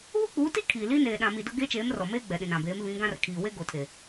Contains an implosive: yes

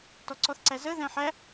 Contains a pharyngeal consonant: yes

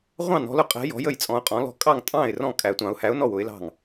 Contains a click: no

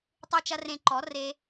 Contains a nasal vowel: yes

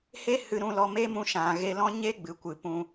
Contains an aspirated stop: no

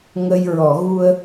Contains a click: no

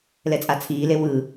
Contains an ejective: yes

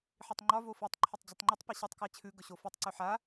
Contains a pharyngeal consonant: yes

